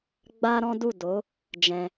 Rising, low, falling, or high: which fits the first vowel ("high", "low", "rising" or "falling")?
high